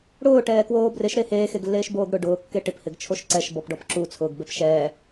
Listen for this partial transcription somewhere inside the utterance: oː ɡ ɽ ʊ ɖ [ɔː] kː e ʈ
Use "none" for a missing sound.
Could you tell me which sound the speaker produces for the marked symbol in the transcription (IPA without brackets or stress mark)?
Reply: ʊː